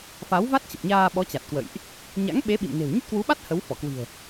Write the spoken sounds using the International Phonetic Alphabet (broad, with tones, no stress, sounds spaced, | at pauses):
f a˨˦ w v a˦˥ t̚ t͡ɕ ə˨˩ p̚ ɲ aː˧ ɓ ɔ˨˦ t͡ɕ a˨˩ t̚ k w ə̰˧˨ j ʔ | ɲ a̰˧˥ ŋ ɓ e˨˦ ɓ ḭ˧˨ m n e̤˨˩ w ɲ ə˦˥ t̚ k w u˨˦ ɓ a˦˥ t̚ h ə˨˦ w f ɔ˧˩ k w i̤˨˩ ə̯